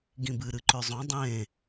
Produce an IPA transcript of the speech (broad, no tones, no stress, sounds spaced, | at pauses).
ɡ ĩ b ɨ ɾ ɨ ǃ ø zˤ õ dˤ ẽ